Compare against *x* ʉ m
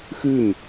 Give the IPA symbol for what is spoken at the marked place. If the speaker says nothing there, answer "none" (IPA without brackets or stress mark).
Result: x